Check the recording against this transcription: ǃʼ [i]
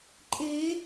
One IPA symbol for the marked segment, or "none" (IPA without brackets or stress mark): e